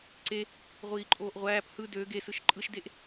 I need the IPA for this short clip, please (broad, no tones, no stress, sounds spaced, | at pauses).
ǀ e | ʁʷ iː ǃʼ oː ʔ ʁʷ æː p h ɯ d ø ɡ e s ɯ ʃ ǃʼ ɯ ʃ d e ʔ